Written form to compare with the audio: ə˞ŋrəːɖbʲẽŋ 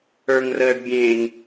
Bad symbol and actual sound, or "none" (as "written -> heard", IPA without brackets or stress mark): none